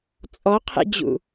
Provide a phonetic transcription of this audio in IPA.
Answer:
t͡sʼ ɔ qʰ ḛ d͡ʑ ṵ

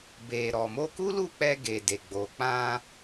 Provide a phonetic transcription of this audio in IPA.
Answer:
b e˨ ɾ ɔ˨ m o˧ k u˦ l u˦˨ k͡p ɛ˧ ɡ e˨ d e˨ ɡ͡b o˨ k͡p ã˧

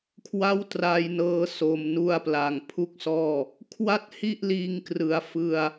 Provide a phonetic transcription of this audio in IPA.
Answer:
kʰ w a˥˩ w t r a˧ j n ɤː˧ s o˨˩ m n u˧ a̯ p l a˩˦ ŋ pʰ u˥˩ k̚ s ɔː˥˩ | kʰ w a˥˩ t̚ h i˥˩ ʔ l iː˧ ŋ k r ɯ˩˦ a̯ f ɯ˧ a̯

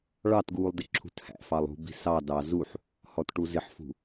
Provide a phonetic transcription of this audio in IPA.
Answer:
ɭ ɑ t ɡ uː lˠ d ɪ ǁʰ ṳ t h æ̰ f ɑ lˠ ṳ b i̤ s ɑ d ɑ z u ħ | h ɔ t ʈ u z ɪ ħ f ṳ

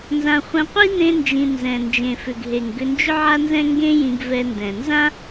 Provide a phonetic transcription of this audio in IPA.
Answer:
n z ã˧ χʷ ɛ̃˧ qʷ i˥ n ẽ˥ n d͡ʒ ĩ˧ n z ɛ̃˩ n d͡ʒ ẽ˩ f ʏ˩ ɡ ɦ e˩ ŋ ɡ ʏ˧ n d͡ʒ ʏ˥ ʕ a˥ n z ɛ̃˥ ŋ ɡ ẽ˥ j ĩ˧ ɡ v ɛ˧ n d ɛ̃˩ n z ã˥

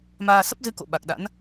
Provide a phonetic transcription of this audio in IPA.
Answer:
m aː˧ s ə˦˥ p̚ z ɨ˧ k o̰˧˨ ɓ a˨˩ k̚ ɗ a̰˧˥ n

